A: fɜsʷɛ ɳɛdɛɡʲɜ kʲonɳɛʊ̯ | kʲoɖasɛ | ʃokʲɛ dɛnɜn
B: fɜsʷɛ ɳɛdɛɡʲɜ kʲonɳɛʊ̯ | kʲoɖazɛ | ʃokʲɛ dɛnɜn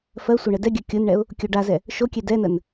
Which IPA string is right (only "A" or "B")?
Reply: B